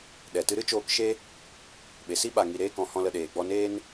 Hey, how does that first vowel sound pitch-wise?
low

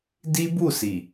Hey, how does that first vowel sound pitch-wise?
high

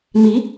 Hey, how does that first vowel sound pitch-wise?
rising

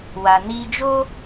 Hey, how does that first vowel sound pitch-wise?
low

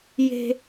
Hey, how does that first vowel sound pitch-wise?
high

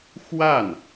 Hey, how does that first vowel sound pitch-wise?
falling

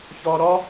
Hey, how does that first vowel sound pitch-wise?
high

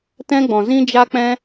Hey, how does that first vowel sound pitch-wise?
high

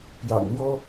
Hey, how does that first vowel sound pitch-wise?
low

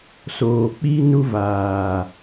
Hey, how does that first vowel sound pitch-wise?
low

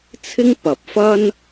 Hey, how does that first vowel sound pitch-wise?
high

